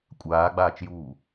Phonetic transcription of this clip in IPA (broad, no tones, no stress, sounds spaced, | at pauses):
kʷʼ aː ɡ͡b aː t͡ʃ j uː